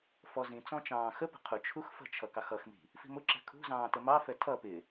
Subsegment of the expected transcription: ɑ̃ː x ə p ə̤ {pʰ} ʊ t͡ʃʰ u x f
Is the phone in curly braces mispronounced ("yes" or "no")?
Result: yes